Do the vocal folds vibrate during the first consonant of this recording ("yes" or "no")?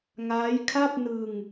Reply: yes